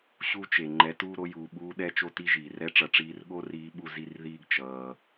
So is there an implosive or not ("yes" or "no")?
yes